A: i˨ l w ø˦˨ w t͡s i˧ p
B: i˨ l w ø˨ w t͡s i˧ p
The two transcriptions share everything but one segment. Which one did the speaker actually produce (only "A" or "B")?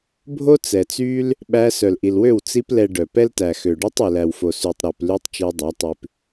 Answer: A